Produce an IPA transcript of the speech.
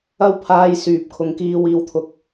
ɐ˥ w pʰ aː˧ j s yː˨ p̚ kʰ ʊ˨˧ ŋ k iː˧ w iː˧ w t̪ʰ ʊ˧ k̚

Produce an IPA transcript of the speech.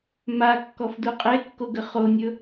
m a kː ɔ f d u qʼ e kː o ɡ ə χ o nʲ ɵ

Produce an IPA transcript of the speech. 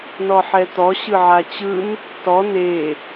n ɔ ħ ɛ t̪ ɔ ɕ ɯ ʕ a t͡ɕ ɯ n | t ɔ n e

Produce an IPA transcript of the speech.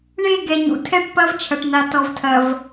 ɳ e˦˨ ɡ ɛ˨ ɲ ṵ˨ tʰ ɛ˦˨ ʈ p ɐ˦ v t͡ʃʰ ɐ˨ ʈ n a˨ t ɔ˨ v tʰ ɐ˨ v

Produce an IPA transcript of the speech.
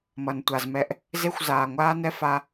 m ʌ˨ n tʷ a˨ z m ɛ˧ ʔ | z e˦ xʷ z aː˨ ŋʷ aː˧ n ɛ˧ f a˧

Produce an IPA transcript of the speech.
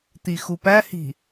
t̪ i x u p æ h i̤

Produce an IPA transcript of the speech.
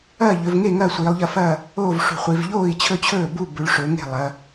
ɐː˥˨ ʎ ɵ˩˧ v ŋ e˥˨ ŋ ɐ˥˨ sʷ iː˩˧ lˠ ʎ ɐ˥˨ f ɐː˥˨ | oː˥˨ v ʂ ṳ˩˧ χʷ i˩˧ v ʎ oː˥˨ i̯ t͡ɕʰ ɵ˥˨ t͡ɕʰ ɵː˥˨ b u˥˨ b ʉ˩˧ ɭ ʂ ɵ˩˧ ŋ e̤˥˨ lˠ ɐ˩˧

